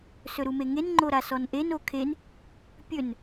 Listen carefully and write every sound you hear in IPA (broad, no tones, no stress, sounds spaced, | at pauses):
s ɵ ɾ u m e ŋ e n ŋ͡ǃ o ɾ a s ɔ n ʔ e n o kʰ e n | pʲ ɵ n